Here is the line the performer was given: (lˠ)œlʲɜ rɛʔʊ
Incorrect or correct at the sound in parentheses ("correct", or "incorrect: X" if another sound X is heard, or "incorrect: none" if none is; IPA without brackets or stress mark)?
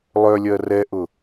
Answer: correct